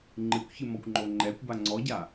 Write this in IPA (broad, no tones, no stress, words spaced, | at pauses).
ŋ͡ǃɨkʷçɨmɔkʷŋ͡ǃo ŋ͡ǃɛkʷba ŋ͡ǀɔɟa